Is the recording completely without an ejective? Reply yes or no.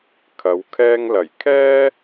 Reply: yes